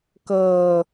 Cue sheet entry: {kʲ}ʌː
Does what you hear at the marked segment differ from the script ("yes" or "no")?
yes